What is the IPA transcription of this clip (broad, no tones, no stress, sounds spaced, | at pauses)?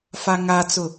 f a ŋ a t͡s ʊ